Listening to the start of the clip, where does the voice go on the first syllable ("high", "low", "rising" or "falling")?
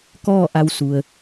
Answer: falling